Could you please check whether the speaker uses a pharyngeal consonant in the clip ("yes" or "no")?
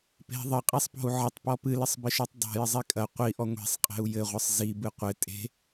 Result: yes